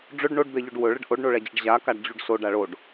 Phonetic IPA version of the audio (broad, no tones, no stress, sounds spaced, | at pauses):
ɖ͡ʐ ɵ ɖ ɳ o ɖ d̪ ɛ ʎ ɵ ɖ w ɵ ɭ ə ɖ ʔ o ɖ ɳ o ɭ ɛ d͡ʑ ə ɖ ʑ a k a ɖ d͡ʑ u ɖ s o ɖ a ɭ o ɖ